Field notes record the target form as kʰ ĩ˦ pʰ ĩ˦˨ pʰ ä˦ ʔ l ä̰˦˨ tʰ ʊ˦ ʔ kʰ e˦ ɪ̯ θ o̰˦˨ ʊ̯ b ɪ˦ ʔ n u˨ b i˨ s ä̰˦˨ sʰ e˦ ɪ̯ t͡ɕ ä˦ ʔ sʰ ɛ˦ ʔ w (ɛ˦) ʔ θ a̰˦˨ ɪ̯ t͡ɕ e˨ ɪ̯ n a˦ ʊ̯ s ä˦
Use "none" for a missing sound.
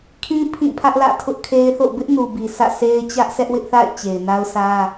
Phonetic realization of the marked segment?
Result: ɪ˦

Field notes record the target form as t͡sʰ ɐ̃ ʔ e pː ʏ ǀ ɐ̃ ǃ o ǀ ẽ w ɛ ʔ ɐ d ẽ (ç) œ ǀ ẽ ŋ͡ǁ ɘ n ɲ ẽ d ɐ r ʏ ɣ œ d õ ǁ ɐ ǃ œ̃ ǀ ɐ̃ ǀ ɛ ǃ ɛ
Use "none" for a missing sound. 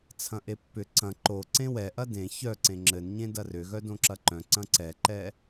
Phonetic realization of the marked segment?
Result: ç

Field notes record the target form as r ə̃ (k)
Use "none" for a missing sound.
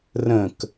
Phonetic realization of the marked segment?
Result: k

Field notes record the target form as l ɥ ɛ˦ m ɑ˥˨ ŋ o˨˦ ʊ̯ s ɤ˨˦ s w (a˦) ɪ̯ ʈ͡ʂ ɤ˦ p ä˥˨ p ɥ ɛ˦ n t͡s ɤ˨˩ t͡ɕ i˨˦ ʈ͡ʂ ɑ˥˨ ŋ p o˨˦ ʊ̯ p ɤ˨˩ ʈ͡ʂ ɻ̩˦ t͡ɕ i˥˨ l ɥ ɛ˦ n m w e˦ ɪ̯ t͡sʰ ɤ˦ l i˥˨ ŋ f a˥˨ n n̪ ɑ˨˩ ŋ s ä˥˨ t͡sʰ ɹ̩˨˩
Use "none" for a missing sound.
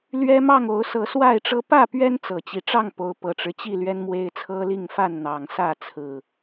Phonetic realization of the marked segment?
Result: a˥˨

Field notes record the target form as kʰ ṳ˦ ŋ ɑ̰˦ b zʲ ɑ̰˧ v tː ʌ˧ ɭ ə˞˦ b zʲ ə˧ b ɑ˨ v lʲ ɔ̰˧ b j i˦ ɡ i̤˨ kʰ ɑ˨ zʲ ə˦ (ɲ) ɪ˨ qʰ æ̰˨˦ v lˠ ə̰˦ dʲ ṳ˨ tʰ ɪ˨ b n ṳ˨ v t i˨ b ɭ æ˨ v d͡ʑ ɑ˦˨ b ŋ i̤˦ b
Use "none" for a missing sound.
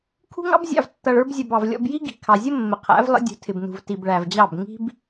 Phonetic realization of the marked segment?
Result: mː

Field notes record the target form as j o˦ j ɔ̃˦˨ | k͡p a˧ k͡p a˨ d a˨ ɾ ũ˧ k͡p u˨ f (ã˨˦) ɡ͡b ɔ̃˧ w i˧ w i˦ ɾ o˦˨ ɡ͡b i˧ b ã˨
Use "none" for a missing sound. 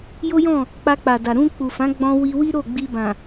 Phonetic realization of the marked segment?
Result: ã˨˦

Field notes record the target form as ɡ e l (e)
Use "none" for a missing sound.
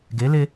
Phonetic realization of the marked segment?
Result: e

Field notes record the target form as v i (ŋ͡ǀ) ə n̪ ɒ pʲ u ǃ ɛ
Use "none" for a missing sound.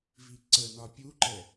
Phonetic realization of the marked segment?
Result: ǀ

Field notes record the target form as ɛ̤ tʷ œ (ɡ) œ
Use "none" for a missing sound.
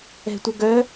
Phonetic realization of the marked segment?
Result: ɡ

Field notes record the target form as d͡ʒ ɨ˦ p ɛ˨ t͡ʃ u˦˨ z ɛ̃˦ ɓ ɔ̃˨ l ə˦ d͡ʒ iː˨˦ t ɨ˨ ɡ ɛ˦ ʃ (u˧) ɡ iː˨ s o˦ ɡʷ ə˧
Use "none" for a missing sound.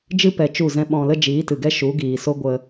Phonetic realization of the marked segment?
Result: u˨˦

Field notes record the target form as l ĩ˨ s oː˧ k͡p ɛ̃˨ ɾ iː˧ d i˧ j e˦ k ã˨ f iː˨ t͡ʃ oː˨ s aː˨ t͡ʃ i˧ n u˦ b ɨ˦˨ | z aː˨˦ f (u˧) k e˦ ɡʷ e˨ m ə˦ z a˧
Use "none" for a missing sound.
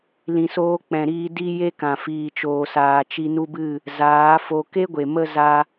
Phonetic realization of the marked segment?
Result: o˧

